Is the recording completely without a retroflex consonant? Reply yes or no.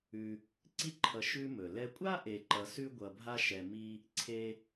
yes